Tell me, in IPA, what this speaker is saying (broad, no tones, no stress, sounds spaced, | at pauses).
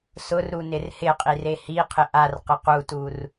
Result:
s ʊ r ɾ u n ɪ r h ɪ qʼ i r e h i qʰ ɪ ʔ a r q ɪ q u t u r